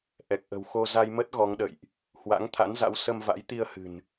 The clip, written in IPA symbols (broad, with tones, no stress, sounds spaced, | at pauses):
ʔ ɛ˨˩ k̚ ʔ ə̤˨˩ w x o˧ z a˧ j m ə˦˥ t̚ ɣ ɔ˨˦ ŋ ɗ ə̰˧˨ j ʔ | h w a̰˧˥ ŋ t̪ʰ a̰˧˥ n z a̰˧˥ w s ə˧ m v a̰˧˥ j t̪ i˧ ə̯ h ɨ̤˨˩ n